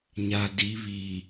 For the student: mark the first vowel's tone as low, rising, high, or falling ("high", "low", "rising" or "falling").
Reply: low